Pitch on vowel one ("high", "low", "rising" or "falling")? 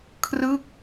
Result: falling